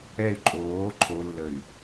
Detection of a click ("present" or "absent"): present